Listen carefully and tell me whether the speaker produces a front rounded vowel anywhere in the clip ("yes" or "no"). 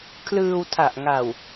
no